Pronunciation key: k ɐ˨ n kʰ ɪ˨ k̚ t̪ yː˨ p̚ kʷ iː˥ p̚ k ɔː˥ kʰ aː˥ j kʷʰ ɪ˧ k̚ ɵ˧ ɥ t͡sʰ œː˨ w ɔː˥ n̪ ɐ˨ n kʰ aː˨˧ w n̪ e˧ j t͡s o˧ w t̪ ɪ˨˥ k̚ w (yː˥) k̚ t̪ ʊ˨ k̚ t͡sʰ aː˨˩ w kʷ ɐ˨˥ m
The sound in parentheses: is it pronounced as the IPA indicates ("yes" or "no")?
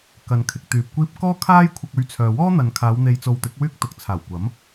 yes